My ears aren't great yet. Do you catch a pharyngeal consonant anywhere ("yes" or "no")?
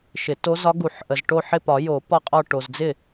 yes